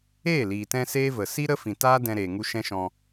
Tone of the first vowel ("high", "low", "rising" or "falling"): falling